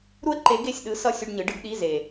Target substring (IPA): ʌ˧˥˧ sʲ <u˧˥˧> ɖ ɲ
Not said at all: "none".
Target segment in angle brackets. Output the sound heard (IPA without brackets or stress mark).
u˧˥˧